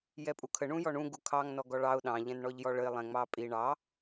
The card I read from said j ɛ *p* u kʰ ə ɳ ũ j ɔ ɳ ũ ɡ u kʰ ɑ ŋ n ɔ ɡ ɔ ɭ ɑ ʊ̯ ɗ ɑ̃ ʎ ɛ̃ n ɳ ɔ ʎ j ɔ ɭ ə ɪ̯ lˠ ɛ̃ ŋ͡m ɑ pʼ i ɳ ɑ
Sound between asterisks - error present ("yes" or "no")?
yes